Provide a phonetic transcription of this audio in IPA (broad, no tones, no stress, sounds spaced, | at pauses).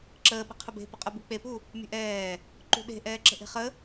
ǁ əː ɓ ə̤ qʰ ə b e̤ p ə qʼ ə b u k͡p e p u | mʲ ə̤ ʔ ɛː | ǃ ṳ ɗ e̤ ʔ ɛː ǁ ə̤ ʔ e̤ χ ə